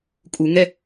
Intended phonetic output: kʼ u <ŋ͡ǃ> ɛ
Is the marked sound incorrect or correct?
incorrect